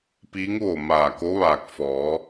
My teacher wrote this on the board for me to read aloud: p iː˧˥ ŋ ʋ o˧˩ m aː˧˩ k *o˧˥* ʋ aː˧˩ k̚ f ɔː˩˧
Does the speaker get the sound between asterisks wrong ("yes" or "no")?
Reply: no